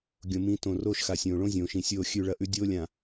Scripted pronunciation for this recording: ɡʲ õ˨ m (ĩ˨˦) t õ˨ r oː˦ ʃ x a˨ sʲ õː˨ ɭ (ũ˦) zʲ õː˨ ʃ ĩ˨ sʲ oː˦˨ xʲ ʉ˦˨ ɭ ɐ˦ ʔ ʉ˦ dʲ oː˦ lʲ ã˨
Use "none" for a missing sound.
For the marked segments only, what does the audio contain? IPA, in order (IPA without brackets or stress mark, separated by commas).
ĩ˨˦, õ˦